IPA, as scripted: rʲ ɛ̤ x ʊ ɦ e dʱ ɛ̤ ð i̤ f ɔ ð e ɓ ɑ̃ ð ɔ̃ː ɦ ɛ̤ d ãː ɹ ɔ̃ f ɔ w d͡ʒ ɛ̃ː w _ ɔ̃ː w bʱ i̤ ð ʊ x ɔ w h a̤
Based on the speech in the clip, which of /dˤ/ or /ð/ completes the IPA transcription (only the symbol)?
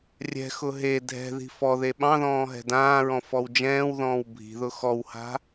ð